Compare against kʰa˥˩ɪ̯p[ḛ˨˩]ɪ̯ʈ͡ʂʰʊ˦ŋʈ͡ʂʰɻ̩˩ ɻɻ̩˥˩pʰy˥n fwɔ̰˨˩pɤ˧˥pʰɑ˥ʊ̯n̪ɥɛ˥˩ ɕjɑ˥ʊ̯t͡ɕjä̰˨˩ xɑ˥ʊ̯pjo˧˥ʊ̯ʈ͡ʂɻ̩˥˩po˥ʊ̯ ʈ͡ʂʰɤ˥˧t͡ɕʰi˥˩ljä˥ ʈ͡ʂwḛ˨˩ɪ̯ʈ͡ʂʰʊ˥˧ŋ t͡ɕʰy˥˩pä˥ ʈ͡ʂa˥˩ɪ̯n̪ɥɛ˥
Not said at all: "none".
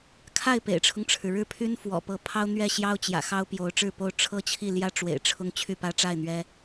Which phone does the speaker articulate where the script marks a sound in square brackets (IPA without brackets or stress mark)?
ḛ˨˩